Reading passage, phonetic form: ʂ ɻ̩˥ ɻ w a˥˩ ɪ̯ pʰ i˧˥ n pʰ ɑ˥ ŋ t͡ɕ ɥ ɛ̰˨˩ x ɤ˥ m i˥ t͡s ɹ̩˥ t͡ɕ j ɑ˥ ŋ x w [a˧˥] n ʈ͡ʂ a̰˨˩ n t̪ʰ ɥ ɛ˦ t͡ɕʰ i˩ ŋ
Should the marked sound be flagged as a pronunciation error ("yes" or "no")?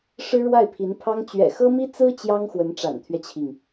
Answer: yes